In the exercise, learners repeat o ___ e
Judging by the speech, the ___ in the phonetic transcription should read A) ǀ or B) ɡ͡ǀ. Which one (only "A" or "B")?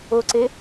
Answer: A